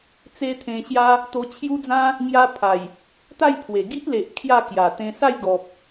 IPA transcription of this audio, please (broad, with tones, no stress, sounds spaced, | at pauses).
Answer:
t͡s e˦ t̪ʰ ẽ˧ ɕ j a˦ | t̪ o˧ t͡ɕʰ j u˦ d͡z ã˦ | ŋ j a˧ pʰ a˨˩ j | t̪ a˥˧ j pʰ w e˨˩ ɡ i˦ ʔ l e˨ ʔ kʰ j a˥˧ k j a˨˩ t̪ ẽ˧ s a˥˧ j ɡ ɔ˨ p̚